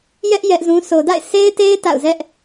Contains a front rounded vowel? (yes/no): no